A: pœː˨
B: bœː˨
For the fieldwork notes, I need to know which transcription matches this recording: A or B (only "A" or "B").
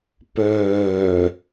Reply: A